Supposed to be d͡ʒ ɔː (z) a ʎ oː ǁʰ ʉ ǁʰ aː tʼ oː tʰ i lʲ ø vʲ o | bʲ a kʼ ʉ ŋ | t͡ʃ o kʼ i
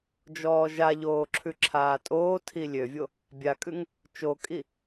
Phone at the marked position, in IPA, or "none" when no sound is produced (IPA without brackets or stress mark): ʒ